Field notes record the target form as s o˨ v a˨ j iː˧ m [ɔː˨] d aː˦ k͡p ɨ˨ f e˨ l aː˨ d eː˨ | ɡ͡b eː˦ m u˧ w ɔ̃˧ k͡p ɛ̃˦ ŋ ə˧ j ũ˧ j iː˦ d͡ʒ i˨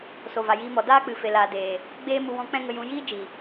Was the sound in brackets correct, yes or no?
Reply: no